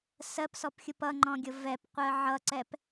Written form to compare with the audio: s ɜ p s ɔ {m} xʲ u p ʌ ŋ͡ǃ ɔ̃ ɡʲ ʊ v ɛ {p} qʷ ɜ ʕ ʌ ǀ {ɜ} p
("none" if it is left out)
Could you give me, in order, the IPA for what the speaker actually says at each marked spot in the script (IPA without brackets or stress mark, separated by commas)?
p, p, ɛ